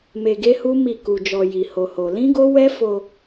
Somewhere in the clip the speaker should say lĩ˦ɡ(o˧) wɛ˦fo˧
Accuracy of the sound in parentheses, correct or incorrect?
incorrect